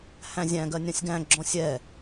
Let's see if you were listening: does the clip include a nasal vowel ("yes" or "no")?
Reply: yes